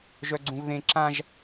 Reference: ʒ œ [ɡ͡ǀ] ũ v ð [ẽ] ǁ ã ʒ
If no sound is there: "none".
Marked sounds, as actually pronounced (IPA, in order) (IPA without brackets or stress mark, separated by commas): ɡ͡ǀ, ẽ